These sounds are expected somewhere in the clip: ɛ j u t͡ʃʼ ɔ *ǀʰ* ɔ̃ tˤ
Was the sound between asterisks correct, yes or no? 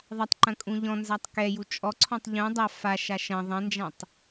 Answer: yes